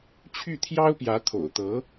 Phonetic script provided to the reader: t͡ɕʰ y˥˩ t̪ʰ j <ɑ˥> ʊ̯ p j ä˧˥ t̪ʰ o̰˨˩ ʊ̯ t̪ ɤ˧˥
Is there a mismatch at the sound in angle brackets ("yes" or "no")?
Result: no